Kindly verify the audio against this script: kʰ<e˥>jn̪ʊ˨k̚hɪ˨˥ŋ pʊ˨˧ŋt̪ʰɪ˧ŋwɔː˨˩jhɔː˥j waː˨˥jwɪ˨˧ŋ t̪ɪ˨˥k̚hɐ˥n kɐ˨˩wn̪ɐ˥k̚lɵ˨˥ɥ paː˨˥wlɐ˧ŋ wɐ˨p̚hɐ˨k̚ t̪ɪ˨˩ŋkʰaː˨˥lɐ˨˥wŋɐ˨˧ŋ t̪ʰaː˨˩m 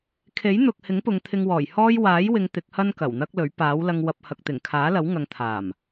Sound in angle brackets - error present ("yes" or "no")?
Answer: yes